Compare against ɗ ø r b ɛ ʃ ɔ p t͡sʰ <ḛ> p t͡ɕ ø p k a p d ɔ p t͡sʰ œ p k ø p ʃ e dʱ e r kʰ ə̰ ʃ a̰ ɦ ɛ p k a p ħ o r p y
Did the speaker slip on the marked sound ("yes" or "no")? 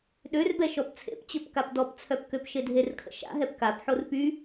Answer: no